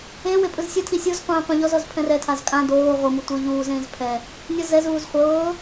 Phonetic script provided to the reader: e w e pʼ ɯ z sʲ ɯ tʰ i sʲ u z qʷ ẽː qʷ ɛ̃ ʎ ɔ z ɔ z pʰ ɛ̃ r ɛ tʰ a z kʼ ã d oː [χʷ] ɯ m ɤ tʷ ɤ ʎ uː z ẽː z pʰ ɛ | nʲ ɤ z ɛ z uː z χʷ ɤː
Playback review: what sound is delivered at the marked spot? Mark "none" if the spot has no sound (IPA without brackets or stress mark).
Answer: ʁʷ